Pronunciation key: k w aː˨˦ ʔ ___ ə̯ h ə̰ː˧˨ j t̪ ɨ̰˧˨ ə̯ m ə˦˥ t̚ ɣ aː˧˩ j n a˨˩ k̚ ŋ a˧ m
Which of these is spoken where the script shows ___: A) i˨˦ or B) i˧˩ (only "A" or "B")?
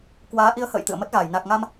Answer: A